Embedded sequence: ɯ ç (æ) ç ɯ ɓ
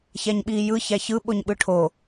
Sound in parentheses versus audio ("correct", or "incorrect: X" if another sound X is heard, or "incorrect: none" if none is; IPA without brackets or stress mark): correct